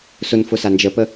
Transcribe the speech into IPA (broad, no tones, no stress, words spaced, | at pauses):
sʊnfʊsa nd͡ʒəpə